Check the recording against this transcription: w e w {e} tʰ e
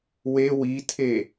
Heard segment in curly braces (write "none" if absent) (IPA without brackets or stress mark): i